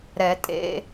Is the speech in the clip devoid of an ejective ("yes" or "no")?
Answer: no